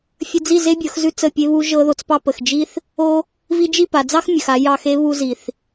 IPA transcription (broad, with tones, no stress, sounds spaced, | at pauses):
fʲ ə˧ d͡z i˦˨ z e˦ bʲ ɤ˨˦ x z ʉ˦ t͡s ə˦˨ pʲ e˦ β u˦ ʒ ɤ˦ ð o˧ t͡s p ɑ˦ p ə˨ x d͡ʒ i˦ θ | o˦ | v i˧ d͡ʒ i˦˨ p a˨ d͡z ɑ˦ x mʲ ə˨ x a˧ j ɑ˧ x e˦ β u˧ z i˨ θ